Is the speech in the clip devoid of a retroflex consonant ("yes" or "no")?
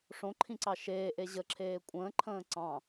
no